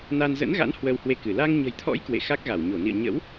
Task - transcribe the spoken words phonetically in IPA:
n a˧ n z ə̰˧˥ n ɣ a̰˧˥ n h w ə˧ w h w e˧ k ɨ˧˩ l a˧ ŋ ɲ ə̤˨˩ j t̪ʰ ɔ̰˧˥ j k w ḛ˧˨ x a˦˥ k̚ ɣ a˧˩ w ɲ o˧˩ n ḭ˧˨ ə̯ ɲ ə̰˧˥ w

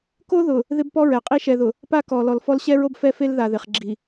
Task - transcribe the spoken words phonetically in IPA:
k o˦ ð ʊ˨ | ð ɪ˦ b p ɔ˦ ɹ ɛ˨ qʼ i˦ ʃ ɛ˨ ð ʊ˨ | p a˦ k ɔ˨ l ɔ˨ l f ɔ˦ l ɕ ɛ˦ ɹ o˦ b f ɛ˦ f e˦ l ð a˨ ð ɪ˨ χ ɡ͡ǁ i˨

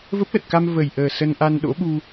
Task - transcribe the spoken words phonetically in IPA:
v ə˦˥ p̚ l ə˨˩ t̚ k a˧ m v ə˨˩ j ʔ əː˨˩ s ə˧ n ʔ a˧ n ɗ o̰˧˥ ɓ u˧

